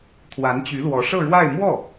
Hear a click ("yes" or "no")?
no